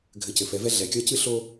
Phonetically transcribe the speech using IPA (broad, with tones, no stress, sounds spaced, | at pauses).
ɡʱ ɘ˨˦ c ɘ˨ f ɛ˨˦ v ɛ˦ ɮ ɛ˨ kʲ ɒ˦ c ɨ˦ ɬ o˦